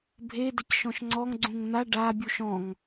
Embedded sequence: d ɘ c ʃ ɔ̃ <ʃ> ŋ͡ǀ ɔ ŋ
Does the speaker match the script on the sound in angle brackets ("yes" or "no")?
yes